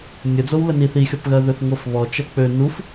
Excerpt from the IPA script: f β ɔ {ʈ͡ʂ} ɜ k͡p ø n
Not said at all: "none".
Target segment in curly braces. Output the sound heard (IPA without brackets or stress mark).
t͡ʃ